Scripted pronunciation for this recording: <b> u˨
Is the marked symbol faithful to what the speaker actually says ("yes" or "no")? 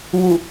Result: no